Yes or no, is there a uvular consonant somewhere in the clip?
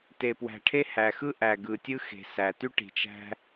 no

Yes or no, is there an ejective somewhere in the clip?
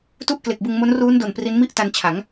no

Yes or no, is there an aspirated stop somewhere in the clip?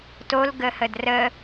no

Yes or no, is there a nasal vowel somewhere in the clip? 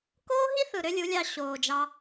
no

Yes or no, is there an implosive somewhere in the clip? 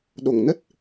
yes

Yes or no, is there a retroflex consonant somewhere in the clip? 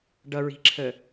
yes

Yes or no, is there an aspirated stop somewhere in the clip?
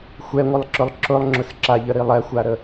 no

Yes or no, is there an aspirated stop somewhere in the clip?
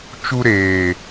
no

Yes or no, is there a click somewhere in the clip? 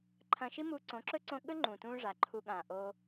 yes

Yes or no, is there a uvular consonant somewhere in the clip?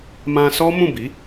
no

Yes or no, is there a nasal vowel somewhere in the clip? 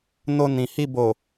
yes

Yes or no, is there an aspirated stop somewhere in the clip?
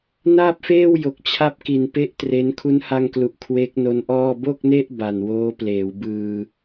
yes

